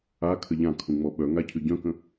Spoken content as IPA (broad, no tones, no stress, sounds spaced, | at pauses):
a kʰ ə ʎ ã kʰ ũ ŋ͡m ɔ ɓ œ ŋ a cʰ y ɟ œ̃ k ə̃